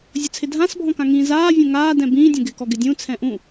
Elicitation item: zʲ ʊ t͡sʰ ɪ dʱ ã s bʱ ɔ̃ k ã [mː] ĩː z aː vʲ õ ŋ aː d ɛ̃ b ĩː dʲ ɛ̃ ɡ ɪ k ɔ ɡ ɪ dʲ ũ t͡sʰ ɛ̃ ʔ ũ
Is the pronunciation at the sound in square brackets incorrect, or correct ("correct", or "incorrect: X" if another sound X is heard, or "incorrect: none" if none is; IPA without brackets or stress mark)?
incorrect: ŋ